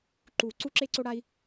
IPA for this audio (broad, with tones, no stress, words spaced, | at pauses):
ǃu˨˩˦ ǀu˧ǁe˧ǀo˧ɽa˧i̯